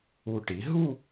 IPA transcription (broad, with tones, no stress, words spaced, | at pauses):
u˨˩ ʈi˩˧ ɦu˥˧